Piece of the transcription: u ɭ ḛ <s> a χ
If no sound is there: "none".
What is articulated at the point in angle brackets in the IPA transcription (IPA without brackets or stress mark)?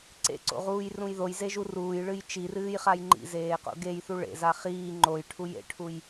z